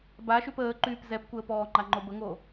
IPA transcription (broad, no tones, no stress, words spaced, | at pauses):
baʃyp əːǃyːp zɛpkʷəːpɔːŋ͡ǃa ŋ͡ǃobəŋo